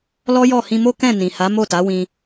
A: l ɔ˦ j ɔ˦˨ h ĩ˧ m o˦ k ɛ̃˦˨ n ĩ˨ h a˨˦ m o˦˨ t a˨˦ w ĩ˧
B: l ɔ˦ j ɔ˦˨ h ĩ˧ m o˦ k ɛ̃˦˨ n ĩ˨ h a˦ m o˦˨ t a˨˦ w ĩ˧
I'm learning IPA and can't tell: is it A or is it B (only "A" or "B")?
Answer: A